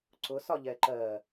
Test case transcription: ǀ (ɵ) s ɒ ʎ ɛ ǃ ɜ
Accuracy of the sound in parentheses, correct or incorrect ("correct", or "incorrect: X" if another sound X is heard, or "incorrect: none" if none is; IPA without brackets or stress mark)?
incorrect: ʊ